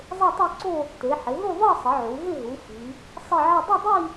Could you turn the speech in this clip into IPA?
zˤ e˥˧ tˤ o˥˧ ǀ o˥˧ | t e˩˧ ħ ɪ˩˧ ɦ u˥˧ ðˤ i˥˧ sˤ ə˩˧ ʕ u˩˧ ɦ ɪ˥˧ ɦ u˩˧ f i˩˧ | sˤ ɪ˥˧ ʕ ə˥˧ dˤ ə˥˧ dˤ i˥˧

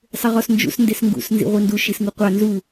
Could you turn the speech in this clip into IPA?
sˤ ɪ ʁ ɔ s n d͡ʒ ṵ s n d e s ŋ ɡ ṵ s n z ḭ ʁʷ i n d u ʃ i s ŋ u qʷ ɑ n z u

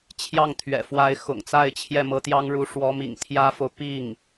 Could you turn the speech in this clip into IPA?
t͡ɕʰ j ɑ˥˩ ŋ t̪ʰ ɥ ɛ̰˨˩ f w a˧˥ ɪ̯ x ʊ̰˨˩ ŋ t͡s a˥˧ ɪ̯ t͡ɕʰ j ɛ˥˩ m ɤ˧˥ t̪ j ɑ˥ ŋ ɻ u˧˥ ʂ w ɔ˧˥ m ḭ˨˩ ŋ t̪ʰ j ä˥ f o˨ ʊ̯ p i˥˩ ŋ

